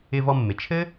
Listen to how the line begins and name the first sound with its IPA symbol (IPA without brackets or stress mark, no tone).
ɪ